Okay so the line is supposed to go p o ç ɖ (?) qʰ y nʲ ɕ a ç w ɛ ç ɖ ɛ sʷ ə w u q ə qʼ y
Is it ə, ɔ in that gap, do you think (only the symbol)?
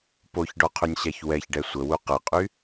ɔ